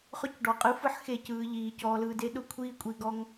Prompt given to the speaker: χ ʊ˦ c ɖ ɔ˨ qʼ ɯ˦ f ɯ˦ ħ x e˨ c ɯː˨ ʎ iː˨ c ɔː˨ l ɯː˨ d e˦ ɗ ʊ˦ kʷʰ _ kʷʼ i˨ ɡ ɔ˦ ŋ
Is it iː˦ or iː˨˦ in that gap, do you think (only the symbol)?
iː˦